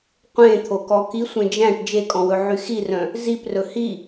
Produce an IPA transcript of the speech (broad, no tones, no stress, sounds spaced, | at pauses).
qʷ ẽ t̪ʰ o k ɔ k i sʷ ẽ d͡ʒ æ̃ ʈ d͡ʒ e kʼ ɔ̃ w ɵ ʕ y x i r œ̃ | z i p r ɵ h i